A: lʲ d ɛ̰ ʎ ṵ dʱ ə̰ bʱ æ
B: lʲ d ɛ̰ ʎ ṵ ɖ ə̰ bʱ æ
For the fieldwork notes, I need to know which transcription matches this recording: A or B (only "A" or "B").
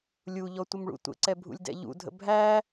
A